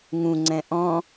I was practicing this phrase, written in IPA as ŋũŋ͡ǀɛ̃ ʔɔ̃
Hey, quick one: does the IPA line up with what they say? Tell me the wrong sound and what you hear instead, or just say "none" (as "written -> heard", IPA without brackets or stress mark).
none